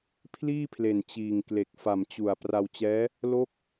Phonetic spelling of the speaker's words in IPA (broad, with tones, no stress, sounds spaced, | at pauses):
pʰ l iː˥˩ pʰ l e˨˩ n t͡ɕ iː˨˩ ŋ k l e˨˩ k̚ f a˨˩ m t͡ɕ u˨˩ a̯ p r a˧ w t͡ɕ ɛː˦˥ | l o˦˥ k̚